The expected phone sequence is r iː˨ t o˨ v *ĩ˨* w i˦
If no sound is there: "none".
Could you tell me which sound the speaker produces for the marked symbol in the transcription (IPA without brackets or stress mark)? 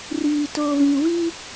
ĩ˨